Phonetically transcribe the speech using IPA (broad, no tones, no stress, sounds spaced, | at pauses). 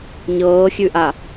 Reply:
ɲ ɤː xʲ ʉ ʔ a